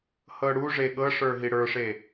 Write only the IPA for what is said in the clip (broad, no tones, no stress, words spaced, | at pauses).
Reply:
hɤɽu ʐeɠɤʂə˞ ɦiɽə˞ʂe